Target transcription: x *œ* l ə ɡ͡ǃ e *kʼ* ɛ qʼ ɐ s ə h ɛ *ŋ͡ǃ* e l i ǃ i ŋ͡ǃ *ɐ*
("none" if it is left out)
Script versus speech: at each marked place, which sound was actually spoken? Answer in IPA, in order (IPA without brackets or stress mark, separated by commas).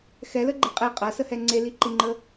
ɛ, qʼ, ŋ͡ǀ, ə